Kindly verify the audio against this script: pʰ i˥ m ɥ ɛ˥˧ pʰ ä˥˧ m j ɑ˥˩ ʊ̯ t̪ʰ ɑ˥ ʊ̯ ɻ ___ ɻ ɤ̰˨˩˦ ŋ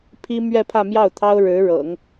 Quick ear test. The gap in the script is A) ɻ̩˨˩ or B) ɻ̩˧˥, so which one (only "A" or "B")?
B